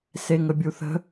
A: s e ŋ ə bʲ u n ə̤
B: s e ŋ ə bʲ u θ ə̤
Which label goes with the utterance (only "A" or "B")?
B